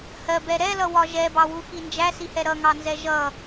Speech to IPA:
hɜbɛ ɾɛlʌwɒ ʒɛbɑwuxi nd͡ʒæsihɛ ɾʌŋɑnzɛ ʒʌ

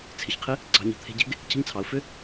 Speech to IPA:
t͡sʰɪ˨çqʰɪ˦ | ɡ͡ǀɑ̤˧ɲə̤˨ t̪ʰe̤˧ɟe̤˦ɡ | cʰə̤˦ɲt͡sʰɑ˨˦ʊ̯ fʏ˦

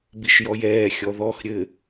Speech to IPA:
biʃjɔjɛː xʲɔðɔx ɾʲɘ

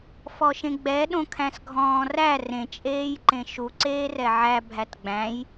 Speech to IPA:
fɔʃẽɡ͡bɛ ɗõkʰæ̃sɡʱɔ̃ːræ rẽ t͡ʃʼeːjǃẽʃu ǀeːrɛʕæ bʱætɡ͡bæ̃j

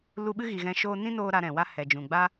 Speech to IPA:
lu˧ɓɨ˦ɣi˨ ɣɛ̃˧ʃoː˦ nĩ˦noː˧ ɾa˧ ɾɛ̃˨ wa˦hɛ˨d͡ʒũ˨ ɡ͡ba˦

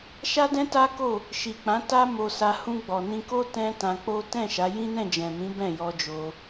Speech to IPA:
ʃa˦dɛ̃˦ta˦ko˦˨ | ʃi˨k͡pã˨˦ ta˦mo˧sa˧ hũ˧ɡ͡bɔ˨nĩ˧ko˦ tɛ̃˦tã˧k͡po˦ tɛ̃˦˨ ʃa˨˦ jĩ˦nɛ̃˦˨d͡ʒɛ̃˨mĩ˨˦ bɛ̃˦˨jɔ˧d͡ʒo˧

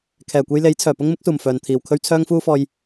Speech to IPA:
kʰɛː˨˩kʷe˧jle˨˥j t͡sʰœː˨˩pʊ˥ŋ mɪ˨˥k̚suː˨˩m fœː˨nt̪ʰiː˨wkʰɵ˥ɥ t͡sʰœː˥ŋfuː˥fɔː˧j

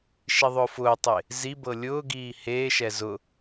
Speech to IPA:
ʃiðˤʊːfʊːtˤe | zibɤ lʲʊːɡiː heːʃɛ zʊ

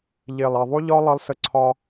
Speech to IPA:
ʎe˨lˠ e˨ðˤu˦ʎɒ˦ lˠʌ˦lˠsə˦ǀʰɒ˦

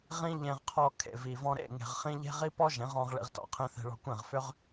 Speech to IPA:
ʁĩ˦ ʎẽ˧ʁqʰɔ˧ kʰḛ˨vi˨vɔ̃˧ ɾḛ˦˨ŋe̤˨ʁχĩ˧ ʎe̤˦ʁi˦ pɔ˦ʒẽ˨˦ʁɔ̃˧ʁ ɭḭ˧ʁtɔ̰˨ qʰĩ˧θe̤˧ɭɔ̤˧kʷẽ˦˨ʁ fʏ˦ʁ

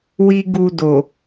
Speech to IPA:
wi˦ɡu˧do˨

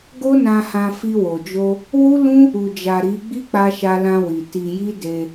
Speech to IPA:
ɡo˦nã˧hã˧ fi˧wo˨d͡ʒo˧ | wu˦ lũ˦ | u˨d͡ʒa˨ ɾi˨˦ ɡ͡bi˦k͡pa˧ʃa˧ lã˧wi˨ ti˧ji˦de˧

